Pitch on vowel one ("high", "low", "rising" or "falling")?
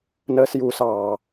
high